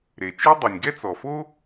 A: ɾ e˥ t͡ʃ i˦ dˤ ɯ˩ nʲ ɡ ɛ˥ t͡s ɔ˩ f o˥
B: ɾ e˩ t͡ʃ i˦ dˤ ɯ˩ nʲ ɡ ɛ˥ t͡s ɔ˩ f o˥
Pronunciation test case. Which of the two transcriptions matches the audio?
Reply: B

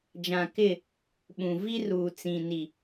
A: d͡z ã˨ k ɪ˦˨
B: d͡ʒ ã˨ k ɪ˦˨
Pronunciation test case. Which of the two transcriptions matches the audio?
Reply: B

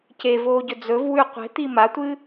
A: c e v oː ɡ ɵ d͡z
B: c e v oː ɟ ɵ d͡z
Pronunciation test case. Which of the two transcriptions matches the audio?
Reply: B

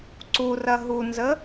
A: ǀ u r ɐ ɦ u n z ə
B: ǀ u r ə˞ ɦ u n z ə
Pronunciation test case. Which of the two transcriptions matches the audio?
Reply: A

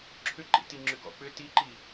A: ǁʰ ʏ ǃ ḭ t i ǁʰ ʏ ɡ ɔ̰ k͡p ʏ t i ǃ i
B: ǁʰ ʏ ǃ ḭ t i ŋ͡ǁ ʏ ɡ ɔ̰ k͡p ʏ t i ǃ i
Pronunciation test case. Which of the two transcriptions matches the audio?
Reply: B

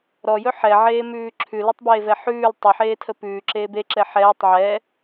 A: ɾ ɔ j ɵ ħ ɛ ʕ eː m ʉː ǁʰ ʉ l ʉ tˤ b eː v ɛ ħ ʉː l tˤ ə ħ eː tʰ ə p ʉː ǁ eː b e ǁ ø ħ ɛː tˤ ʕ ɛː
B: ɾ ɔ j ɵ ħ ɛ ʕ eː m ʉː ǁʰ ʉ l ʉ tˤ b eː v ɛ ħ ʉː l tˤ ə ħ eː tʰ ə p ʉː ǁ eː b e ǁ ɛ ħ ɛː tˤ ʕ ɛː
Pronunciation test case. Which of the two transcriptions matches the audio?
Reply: B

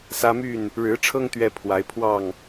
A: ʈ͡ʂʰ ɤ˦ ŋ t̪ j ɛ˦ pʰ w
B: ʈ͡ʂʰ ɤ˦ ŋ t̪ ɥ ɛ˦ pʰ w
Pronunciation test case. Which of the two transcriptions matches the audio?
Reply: B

